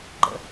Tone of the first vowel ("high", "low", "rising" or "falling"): low